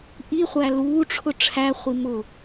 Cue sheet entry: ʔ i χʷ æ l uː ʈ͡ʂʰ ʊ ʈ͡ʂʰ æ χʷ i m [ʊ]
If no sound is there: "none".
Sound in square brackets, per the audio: ʊ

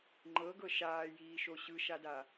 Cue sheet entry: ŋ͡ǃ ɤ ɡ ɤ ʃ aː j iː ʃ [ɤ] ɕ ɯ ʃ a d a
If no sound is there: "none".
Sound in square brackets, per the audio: o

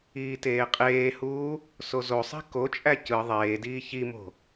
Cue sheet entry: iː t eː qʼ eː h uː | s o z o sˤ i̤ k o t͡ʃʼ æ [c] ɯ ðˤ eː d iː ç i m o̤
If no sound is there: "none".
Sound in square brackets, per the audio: c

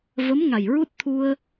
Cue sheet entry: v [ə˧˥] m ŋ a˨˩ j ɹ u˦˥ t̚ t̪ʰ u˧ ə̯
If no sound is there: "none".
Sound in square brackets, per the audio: ə˧˥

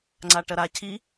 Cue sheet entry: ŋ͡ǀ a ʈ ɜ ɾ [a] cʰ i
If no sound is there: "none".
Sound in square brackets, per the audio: a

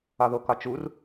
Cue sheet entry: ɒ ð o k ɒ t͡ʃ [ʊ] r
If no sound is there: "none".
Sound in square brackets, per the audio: u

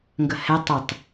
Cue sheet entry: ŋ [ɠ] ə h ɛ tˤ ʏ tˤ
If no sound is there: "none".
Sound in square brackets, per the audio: ɡ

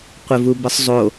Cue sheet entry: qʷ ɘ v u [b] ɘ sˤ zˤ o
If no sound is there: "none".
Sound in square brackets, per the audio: b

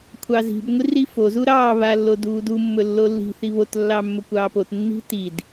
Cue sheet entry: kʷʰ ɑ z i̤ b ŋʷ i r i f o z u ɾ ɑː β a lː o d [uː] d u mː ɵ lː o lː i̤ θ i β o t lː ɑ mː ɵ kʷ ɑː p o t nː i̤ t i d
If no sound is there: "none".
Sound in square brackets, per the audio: uː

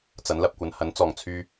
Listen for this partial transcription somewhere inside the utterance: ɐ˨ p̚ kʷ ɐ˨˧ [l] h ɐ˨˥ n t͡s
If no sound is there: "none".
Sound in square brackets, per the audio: n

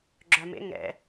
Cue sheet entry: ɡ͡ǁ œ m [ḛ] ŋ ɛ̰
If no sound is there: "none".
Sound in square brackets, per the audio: ḛ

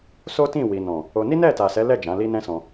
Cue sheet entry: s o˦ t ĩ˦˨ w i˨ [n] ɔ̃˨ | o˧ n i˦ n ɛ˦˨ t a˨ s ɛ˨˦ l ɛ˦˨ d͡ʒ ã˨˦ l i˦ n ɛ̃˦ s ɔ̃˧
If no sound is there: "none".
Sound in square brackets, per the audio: n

